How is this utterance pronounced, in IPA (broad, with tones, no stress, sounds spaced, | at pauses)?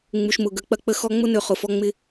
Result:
ŋ͡m u˨ ʃ m ʊ˨ ɡ ə˨˦ k͡p ɐ˦ k͡p ə˦ x ɔ˦ ŋ͡m ʊ˦ n ø˨ χ ʊ˨ f ɔ˦ ŋ͡m ɪ˦